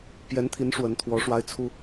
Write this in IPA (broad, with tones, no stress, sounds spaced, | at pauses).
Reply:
p j ɛ˧˥ n t̪ʰ i˧˥ n ʂ w ə˧˥ n t̪ʰ w ɔ˧˥ ʂ w a˥ ɪ̯ t͡sʰ u˥